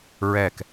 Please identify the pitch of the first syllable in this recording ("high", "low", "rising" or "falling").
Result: falling